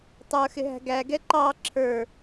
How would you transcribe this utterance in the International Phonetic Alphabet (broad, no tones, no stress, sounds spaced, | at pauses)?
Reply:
tˤ ə˞ x ɪ ɦ æ̤ ɡ æ ɡ ɛ ǃ ɑ ǁʰ ə˞